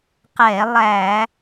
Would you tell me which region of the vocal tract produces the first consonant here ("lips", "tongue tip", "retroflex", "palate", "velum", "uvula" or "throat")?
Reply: uvula